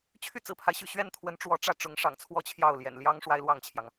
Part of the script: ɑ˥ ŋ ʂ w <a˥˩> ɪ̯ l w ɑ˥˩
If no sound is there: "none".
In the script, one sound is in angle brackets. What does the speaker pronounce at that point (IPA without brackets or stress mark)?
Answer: a˥